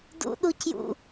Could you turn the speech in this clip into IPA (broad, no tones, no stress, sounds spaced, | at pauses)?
d ṵ ɗ u c j ṵ